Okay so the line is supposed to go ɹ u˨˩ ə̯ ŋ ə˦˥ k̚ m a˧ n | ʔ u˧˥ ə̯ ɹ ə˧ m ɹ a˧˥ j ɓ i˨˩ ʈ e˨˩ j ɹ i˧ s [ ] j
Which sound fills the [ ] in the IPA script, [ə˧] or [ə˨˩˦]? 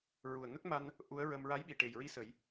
ə˨˩˦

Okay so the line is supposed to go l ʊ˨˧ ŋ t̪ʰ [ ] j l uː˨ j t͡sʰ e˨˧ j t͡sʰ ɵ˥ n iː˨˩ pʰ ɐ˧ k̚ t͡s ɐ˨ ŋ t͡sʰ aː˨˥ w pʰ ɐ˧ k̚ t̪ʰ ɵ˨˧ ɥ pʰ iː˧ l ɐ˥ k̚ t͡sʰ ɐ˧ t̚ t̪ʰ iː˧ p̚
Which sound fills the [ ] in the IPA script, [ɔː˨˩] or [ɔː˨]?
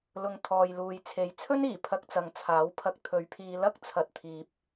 ɔː˨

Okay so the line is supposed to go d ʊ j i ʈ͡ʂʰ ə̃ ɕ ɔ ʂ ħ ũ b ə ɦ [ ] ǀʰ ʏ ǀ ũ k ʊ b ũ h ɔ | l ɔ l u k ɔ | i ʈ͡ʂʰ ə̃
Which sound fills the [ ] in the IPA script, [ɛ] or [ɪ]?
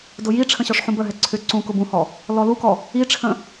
ɛ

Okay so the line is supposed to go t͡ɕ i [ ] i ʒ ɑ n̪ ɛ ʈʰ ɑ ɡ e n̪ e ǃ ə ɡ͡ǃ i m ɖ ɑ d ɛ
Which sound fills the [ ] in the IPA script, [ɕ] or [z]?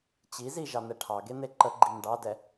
z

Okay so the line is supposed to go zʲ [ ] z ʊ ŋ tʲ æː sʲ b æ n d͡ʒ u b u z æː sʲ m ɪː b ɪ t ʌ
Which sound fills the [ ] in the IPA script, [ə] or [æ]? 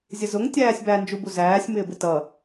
ə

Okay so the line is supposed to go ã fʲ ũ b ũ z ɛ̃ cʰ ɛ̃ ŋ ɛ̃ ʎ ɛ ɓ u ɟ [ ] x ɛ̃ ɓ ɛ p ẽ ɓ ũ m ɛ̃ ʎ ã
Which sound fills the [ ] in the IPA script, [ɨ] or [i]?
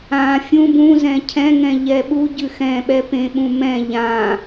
ɨ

